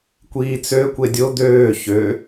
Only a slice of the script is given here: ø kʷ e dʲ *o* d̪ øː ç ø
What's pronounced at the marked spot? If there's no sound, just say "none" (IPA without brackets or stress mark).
o